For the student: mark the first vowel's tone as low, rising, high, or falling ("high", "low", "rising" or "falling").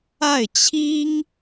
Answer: falling